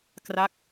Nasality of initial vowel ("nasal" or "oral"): oral